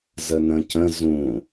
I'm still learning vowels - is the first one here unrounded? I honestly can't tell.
yes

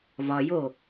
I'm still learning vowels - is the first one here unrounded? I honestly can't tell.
no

